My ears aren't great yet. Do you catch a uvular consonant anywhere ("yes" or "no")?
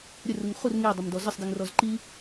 yes